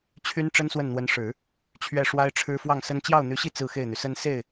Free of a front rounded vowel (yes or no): no